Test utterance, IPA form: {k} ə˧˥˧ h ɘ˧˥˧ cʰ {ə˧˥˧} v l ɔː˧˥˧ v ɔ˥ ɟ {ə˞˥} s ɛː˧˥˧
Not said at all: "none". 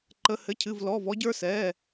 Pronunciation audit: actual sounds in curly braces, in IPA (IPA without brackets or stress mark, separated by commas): ǃ, ɨ˧˥˧, ə˞˥